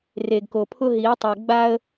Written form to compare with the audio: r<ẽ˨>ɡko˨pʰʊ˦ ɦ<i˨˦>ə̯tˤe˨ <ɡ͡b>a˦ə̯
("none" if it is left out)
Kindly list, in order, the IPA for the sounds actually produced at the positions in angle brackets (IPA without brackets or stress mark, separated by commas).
e˨, i˨˦, ɡ͡b